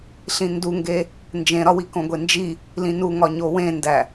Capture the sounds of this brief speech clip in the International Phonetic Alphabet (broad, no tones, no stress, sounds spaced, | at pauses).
ɬ ĩ n d u ŋ ɡ e | n d͡ʒ ẽ ɾ ɒ w i k õ ɡʷ e n d͡ʒ i | l ĩ n u ŋ ɒ ɲ o w ẽ n d æ